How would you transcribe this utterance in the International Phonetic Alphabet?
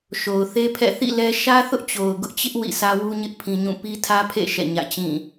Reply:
ʃ o˨ ʊ̯ θ e˦ pʰ ɛ̰˦˨ θ ḭ˦˨ l ɛ˦ ʃ ä˦ θ ʊ˦ ʔ t͡ɕ o˨ ʊ̯ ɡ ʊ˦ ʔ t͡ɕ ɪ˦ ʔ w ḭ˦˨ sʰ ä˦ w u˦ ɲ ɪ˦ ʔ pʰ ĩ˦ ɲ ũ˦˨ p i˦ tʰ ä˦ pʰ ḛ˦˨ ʃ ɛ̰˦˨ ɲ ä̰˦˨ t͡ɕ ĩ˦˨

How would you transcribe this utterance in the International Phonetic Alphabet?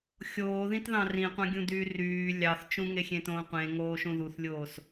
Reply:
xʲ oː ð ĩ t ð ɑ̃ r ĩ qʷ ɑ̃ ɡʲ ũ d yː r yː lʲ ɑ θ t͡ʃ ũ ŋ e xʲ ẽ t õː qʷ ẽ ŋ oː ʃ ũ ð u θ lʲ oː s

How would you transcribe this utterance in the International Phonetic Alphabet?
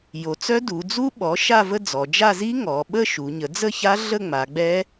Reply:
j o˩˧ t͡s œ˦˥ d u˩˧ d͡z u˦˥ ɓ ɔ˩˥ ʃ a˥˧ v ə˥˧ d͡z ɔ˩˧ d͡ʒ a˥˧ z i˦˥ ŋ ɔ˩˧ ɓ ə˥˧ ʃ u˩˧ ɲ ə˩˥ d͡z ə˥˧ ç a˦˥ ɮ ə˥˧ ŋ͡m a˩˧ ɡ͡b ɛ˦˥

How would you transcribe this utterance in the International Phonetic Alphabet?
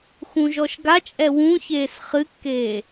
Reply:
x ũ ʒ ɔ ʃ ɡ a t͡ʃʼ ɛ w ũ ç eː s χ ɨ kː eː

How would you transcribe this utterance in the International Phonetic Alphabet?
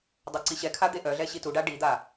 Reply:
dˤ a ǀ i ɕ ɛ kʰ a d̪ e ʔ œ ɮ ɛ ɕ i t u ɖ a ɖ i d̪ a

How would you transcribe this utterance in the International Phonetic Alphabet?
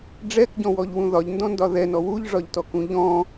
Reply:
ɖ͡ʐ ɛ k ɟ ɔ̃ w ɔ ʎ w ũ ð ɒ ʎ n d ɔ̃ n d ɒ ð ɛ n ɔ w u ʎ ʐ ɒ ʎ t ɔ k ũ ʎ ɔ̃

